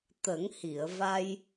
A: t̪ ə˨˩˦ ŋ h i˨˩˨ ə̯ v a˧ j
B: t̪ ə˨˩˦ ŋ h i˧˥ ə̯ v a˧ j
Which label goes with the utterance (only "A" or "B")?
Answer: A